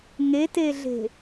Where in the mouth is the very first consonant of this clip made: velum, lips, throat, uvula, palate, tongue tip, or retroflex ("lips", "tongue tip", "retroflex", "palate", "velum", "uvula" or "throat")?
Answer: velum